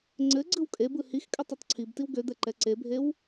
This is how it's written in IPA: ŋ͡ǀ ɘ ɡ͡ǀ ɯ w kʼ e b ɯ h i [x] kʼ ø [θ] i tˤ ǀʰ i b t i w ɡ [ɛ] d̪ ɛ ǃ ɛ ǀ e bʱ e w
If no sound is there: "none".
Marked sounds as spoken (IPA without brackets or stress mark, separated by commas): x, tˤ, ø